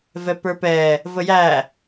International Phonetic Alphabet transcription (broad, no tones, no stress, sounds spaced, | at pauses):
v ɛ p ə˞ p ɛ | v ə j æ